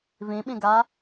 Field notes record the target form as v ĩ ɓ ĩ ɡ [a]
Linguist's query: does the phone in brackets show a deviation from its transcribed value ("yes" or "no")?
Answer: no